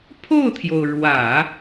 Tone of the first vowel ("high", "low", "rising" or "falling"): falling